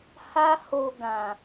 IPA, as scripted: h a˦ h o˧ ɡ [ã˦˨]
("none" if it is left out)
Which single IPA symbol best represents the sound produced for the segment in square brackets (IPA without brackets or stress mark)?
ã˨